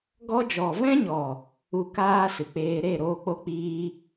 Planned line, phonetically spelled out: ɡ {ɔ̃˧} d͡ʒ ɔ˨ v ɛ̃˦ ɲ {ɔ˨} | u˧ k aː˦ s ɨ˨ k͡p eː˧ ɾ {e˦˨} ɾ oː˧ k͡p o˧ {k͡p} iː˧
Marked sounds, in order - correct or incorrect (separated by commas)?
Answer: incorrect, correct, correct, correct